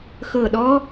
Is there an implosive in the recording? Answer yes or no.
yes